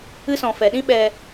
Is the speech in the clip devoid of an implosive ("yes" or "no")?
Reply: no